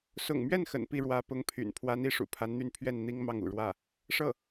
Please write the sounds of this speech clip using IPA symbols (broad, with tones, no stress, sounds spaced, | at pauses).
s ʊ̰˨˩ ŋ m ɥ ɛ˥˩ n x ə̰˨˩ n p i˥˩ ɻ w ä˧˥ p ʊ˧˥ ŋ pʰ y̰˨˩ n pʰ w a˧˥ n i˧˥ ʂ ṵ˨˩ pʰ a˧˥ n n̪ y˧˥ n pʰ ɥ ɛ˥˩ n n̪ i˥ ŋ m ɑ˥˩ ŋ ṵ˨˩ ɻ w ä˥˩ | ʂ ɤ˥˩